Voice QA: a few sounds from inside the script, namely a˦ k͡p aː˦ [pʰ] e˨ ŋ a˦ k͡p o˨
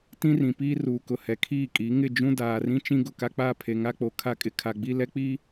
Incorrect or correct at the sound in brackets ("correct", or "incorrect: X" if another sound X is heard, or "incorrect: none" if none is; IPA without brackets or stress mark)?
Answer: correct